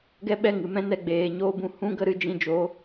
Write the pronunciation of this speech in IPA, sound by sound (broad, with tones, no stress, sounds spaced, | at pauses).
ɡ ɛ˦ ɓ ɛ˦˨ ŋ ɨ˨ m ɛ̃˦ n ɛ˧ ɡ͡b eː˨˦ ɲ oː˦ b ũ˧ h ũ˦ ɡ ə˦ ɾ ɨ˧ d͡ʒ ĩ˧ d͡ʒ oː˨˦